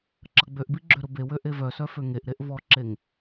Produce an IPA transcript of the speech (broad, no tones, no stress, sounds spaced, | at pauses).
ǁ ɐ ɡ͡b ø ʔ b i ɡ͡ǁ ø ɾ ʊ b e w ø ʔ e v œ s œ f ø ŋ e ʔ ɾ e ʔ v ɔ ǁ e ŋ